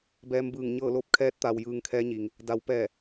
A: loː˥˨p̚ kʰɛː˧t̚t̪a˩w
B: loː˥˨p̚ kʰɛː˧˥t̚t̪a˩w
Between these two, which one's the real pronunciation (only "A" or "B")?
B